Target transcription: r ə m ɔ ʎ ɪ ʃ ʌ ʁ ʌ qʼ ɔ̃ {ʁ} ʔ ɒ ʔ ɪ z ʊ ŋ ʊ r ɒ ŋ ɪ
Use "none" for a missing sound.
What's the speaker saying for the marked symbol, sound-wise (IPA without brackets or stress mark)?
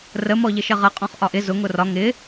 χ